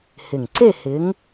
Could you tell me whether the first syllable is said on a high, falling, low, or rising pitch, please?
low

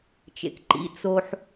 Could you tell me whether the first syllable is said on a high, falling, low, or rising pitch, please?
low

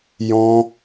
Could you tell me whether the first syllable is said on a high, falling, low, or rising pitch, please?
high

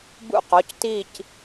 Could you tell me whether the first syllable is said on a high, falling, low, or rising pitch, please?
falling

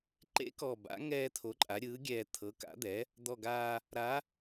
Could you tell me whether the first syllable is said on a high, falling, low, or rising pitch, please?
rising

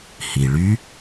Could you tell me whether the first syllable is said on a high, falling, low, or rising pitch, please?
low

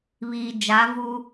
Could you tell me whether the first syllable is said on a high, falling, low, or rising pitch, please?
low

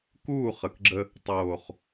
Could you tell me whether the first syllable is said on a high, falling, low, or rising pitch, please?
falling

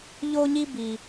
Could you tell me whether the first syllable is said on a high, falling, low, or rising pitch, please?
high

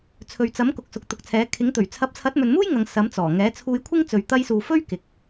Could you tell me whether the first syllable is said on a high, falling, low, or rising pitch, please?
low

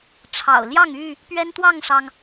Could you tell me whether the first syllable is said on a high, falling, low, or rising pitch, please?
low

